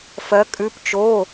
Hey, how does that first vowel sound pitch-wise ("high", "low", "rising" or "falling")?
rising